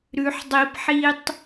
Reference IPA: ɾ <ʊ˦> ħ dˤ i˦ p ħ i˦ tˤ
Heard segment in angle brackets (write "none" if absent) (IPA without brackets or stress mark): ʉ˦